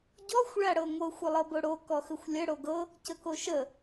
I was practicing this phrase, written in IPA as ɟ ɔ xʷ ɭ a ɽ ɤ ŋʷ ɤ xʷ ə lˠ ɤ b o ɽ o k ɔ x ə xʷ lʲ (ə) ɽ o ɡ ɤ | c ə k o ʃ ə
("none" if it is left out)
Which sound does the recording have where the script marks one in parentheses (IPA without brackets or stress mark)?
ə